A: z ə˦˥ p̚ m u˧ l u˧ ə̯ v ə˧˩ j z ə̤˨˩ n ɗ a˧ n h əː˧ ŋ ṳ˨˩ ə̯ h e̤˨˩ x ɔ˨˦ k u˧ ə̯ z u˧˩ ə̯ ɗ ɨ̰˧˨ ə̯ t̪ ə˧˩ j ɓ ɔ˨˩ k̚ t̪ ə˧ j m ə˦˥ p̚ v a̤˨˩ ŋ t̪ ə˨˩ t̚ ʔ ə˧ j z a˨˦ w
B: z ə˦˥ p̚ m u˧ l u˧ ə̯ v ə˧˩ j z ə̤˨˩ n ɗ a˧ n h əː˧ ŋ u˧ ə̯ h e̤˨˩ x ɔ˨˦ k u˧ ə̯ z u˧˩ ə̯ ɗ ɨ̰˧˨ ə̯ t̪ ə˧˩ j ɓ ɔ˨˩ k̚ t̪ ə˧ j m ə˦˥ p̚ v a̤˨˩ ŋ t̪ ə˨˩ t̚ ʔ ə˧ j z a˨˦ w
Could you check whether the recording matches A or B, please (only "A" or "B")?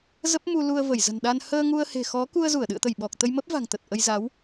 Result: B